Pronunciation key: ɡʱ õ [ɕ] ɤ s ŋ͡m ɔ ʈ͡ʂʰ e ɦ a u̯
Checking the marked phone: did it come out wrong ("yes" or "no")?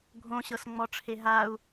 no